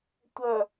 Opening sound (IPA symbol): tʷ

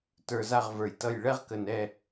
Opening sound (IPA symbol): t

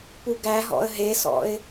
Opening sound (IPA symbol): p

